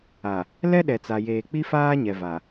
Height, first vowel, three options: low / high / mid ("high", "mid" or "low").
low